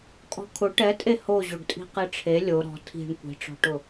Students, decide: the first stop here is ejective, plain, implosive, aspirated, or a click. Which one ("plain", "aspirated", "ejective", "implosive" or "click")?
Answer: ejective